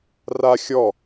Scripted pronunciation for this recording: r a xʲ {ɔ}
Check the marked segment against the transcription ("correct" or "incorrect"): correct